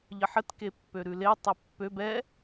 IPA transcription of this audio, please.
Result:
ʎəħət kepːøɾʉle tˤɛpːøb ɛ

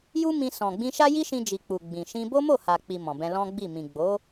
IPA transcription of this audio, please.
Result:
ju˦mĩ˧ sɔ̃˨ɡ͡bĩ˧ʃa˦ ji˦ʃĩ˧d͡ʒi˨ k͡pu˨ɡ͡bĩ˨ʃĩ˧bo˦ mo˦˨ha˨k͡pi˨ mɔ̃˨bɛ̃˧ lɔ̃˦ɡ͡bi˦˨ mĩ˨ɡ͡bo˨˦

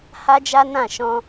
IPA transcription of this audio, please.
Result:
ha˦d͡ʒa˦nã˦˨ ʃɔ̃˧

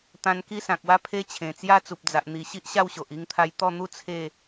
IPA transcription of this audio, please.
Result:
t̪ã˧n ki˦sã˨k̚wa˥˧ pʰe˦t͡ɕʰẽ˨˩t͡sja˥˧ t͡su˨p̚d͡za˨ʔ n̪i˨˩ ɕi˦ʔɕa˥˧wɕo˨ʔ i˧ŋt̪ʰa˧j t̪ɔ˥˧n̪u˥˧ t͡sʰe˥˧

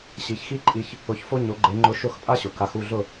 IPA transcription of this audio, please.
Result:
ɕi˩˥çxi˥ǃʼi˧ç | ʊ˧çfo˥ɲo˩˥ɡ͡ǃe˩˥ ŋ͡ǃʊ˧ ʃʊ˥˩xpʼa˥ɕʊ˩ ka˩˥xu˥˩ɮʊ˥˩

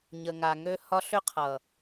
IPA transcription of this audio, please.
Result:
ɲə˨ŋa˨ŋø˦ hɒ˦ ɬʏ˦qʰʌ˨

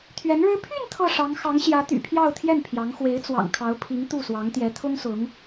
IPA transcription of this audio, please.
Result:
t̪ʰɥɛ˧˥nɻɻ̩˥ pʰy˥˧n t̪ʰɤ˥˩ʂɑ˧˥ŋ xɑ˧˥ŋɕjä˧˥t̪y̰˨˩ pʰjɑ˥˧ʊ̯t̪ʰjɛ˥˩npʰjɑ˧˥ŋ xwe˧˥ɪ̯t͡swɑ̰˨˩ŋ kʰɑ˧˥ʊ̯pʰi˧˥ŋ t̪u˥˩swɑ˧˥ŋt̪jɛ˧˥ t̪ʰʊ˥ŋsʊ˧˥ŋ

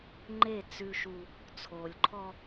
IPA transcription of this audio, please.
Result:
ŋ͡ǃe˦˨ t͡sʉ˦ʃu˦ | t͡sʰo˨lʲǃʰɔ˦

